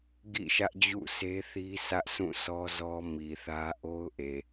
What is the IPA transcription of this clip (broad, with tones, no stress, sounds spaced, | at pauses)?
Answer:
ɡ ḭ˦˨ ʃ ä˦ ʔ d͡ʑ ṵ˦˨ s e˦ θ i˦ s ä˦ ʔ sʰ ũ˦˨ sʰ ɔ˦ z ɔ˦ m i˨ θ ä˦ ʔ o˦ ʊ̯ ʔ e˨